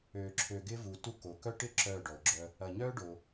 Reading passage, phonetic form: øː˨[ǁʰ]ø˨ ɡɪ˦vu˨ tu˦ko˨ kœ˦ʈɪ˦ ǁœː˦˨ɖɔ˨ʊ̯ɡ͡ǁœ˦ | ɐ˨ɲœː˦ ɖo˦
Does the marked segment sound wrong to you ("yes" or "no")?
no